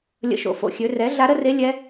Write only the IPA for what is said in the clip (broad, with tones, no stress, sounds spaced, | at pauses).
lʲ ə̰˧˥ ʃ o̰˩˥ f o̰˩˥ xʲ ø˩˥ r ɛ˩˥ ɮ a˧˥ ɾ ə˥ r e˧˥ lʲ ɛ˧˥